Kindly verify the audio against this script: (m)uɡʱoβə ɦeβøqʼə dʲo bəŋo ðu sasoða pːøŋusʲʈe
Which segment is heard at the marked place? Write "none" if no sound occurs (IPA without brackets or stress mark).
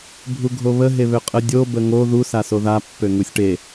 bʱ